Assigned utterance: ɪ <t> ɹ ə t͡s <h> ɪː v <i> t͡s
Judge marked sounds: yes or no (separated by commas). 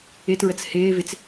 yes, yes, no